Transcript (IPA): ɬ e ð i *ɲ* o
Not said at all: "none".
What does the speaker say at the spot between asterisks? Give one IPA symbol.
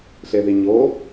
ɲ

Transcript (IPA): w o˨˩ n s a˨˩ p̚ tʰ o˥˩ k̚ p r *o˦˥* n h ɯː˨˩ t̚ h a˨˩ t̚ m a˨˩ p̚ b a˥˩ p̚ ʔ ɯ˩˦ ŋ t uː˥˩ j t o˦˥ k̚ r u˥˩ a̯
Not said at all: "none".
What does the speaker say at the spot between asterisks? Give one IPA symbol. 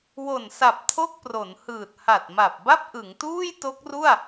o˩˦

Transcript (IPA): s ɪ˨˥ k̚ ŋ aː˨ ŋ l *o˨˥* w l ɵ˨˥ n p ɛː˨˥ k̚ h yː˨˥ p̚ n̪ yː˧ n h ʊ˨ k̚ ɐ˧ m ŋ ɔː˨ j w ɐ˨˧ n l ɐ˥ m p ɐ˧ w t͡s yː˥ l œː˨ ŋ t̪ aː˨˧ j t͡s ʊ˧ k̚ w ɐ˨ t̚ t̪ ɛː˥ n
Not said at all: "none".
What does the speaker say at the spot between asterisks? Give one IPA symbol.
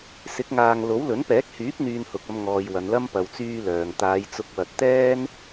o˨˥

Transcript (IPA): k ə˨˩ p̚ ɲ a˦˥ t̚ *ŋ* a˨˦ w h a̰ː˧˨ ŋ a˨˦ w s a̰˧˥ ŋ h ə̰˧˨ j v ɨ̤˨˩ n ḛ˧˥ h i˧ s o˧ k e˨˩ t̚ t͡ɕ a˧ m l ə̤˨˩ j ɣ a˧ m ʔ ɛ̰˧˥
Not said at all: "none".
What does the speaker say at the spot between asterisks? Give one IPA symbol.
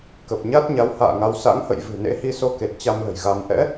ɲ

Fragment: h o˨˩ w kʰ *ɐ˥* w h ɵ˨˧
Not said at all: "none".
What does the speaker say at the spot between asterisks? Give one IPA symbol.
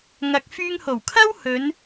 ɐ˥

